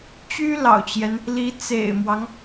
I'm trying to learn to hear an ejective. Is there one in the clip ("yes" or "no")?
no